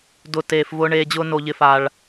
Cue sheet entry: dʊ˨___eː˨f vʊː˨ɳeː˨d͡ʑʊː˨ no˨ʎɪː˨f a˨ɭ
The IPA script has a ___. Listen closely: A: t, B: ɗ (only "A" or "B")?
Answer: A